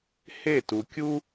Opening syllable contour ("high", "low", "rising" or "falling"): falling